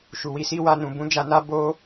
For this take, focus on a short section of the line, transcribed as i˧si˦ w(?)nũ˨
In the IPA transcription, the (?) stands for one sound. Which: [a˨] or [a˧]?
a˧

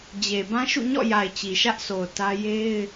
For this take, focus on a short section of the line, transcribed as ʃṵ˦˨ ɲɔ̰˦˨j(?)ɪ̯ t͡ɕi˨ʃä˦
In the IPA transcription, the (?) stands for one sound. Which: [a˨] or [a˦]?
a˨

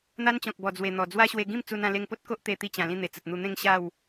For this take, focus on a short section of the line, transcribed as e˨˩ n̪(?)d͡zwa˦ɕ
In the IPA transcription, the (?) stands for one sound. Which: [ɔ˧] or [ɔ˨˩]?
ɔ˨˩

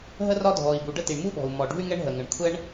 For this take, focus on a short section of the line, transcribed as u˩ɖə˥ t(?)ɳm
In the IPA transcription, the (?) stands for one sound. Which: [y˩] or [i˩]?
i˩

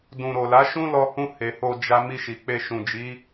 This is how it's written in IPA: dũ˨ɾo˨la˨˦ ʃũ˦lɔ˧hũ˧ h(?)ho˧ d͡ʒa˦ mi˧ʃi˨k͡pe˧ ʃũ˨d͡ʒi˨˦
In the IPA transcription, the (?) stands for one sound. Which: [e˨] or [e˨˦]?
e˨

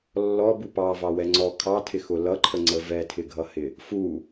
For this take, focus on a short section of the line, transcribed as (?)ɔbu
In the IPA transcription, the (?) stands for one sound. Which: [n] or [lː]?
lː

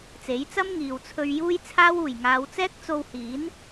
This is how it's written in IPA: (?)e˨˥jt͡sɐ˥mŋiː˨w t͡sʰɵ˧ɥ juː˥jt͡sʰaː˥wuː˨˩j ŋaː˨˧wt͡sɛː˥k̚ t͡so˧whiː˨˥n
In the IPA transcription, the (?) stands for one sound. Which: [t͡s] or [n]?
t͡s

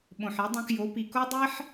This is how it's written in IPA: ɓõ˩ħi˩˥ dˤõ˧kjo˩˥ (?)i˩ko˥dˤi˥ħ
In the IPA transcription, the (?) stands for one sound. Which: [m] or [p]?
p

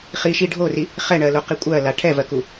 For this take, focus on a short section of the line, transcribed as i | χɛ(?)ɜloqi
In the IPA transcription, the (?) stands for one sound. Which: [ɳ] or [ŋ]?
ɳ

